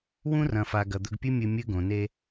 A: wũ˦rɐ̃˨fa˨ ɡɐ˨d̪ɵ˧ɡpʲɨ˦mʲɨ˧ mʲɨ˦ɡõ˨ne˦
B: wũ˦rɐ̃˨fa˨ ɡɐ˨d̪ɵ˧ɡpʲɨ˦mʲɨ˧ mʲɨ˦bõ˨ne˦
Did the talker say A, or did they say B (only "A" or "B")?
A